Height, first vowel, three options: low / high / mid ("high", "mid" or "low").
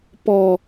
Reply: mid